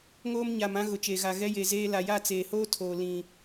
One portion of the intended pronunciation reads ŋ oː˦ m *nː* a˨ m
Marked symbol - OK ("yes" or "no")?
no